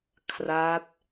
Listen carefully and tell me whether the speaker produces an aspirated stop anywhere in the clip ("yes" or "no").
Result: yes